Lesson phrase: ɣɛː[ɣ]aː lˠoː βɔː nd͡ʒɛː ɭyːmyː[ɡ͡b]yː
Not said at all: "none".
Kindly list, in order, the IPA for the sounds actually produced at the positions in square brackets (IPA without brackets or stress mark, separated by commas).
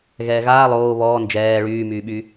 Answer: ɣ, ɓ